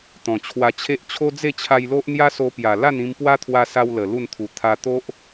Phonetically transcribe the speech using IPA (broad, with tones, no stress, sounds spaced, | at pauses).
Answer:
t̪ ɔ̃˨˩ t͡ɕʰ w a˧ t͡ɕʰ e˦ ʔ t͡ɕʰ o˦ d͡z e˥˧ t͡ɕʰ a˧ j l o˦ ʔ n̪ j a˦ s o˧ p j a˨˩ l a˥˧ n ĩ˧ m p w a˦ t̪ʰ w a˧ s a˧ w l ə˨˩ l u˥˧ n t̪ʰ u˨˩ t̪ʰ a˧ t̪ o˦ ʔ